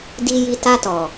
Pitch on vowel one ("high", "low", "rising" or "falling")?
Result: low